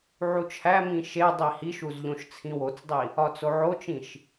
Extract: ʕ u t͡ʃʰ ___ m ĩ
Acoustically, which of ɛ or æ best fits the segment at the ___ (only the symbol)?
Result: æ